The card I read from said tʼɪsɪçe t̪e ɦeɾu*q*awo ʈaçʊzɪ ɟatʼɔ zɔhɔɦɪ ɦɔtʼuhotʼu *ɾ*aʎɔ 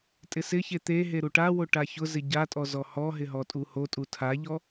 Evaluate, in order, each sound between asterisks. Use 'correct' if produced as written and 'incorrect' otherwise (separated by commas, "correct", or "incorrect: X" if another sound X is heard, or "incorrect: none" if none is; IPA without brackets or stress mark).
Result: incorrect: ʈ, incorrect: tʰ